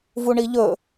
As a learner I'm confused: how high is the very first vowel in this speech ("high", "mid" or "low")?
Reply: high